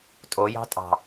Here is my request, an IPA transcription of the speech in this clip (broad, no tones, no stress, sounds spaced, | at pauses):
tʼ o j ɑ̤ tʼ ɑ̤